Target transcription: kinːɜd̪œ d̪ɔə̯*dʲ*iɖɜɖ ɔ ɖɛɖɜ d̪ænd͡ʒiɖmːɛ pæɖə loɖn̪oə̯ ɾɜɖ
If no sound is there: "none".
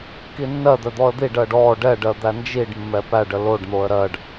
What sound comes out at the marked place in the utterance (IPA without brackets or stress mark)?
d̪